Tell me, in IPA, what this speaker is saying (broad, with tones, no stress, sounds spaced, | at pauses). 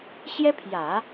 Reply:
ɕ j ɛ˥ pʰ j ä˨˩˦